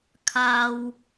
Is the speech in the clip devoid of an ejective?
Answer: yes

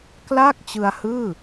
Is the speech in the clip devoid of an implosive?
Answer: yes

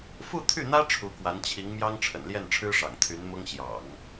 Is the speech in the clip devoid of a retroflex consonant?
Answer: no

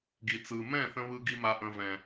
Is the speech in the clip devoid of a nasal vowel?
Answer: no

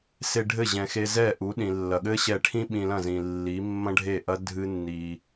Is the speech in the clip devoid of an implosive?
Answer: no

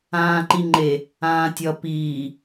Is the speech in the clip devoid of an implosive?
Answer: yes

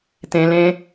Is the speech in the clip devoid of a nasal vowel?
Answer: no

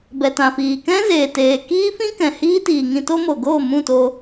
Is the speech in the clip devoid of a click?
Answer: yes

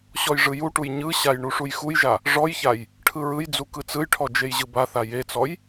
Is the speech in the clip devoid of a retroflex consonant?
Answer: no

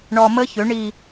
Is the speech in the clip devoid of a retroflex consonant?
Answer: no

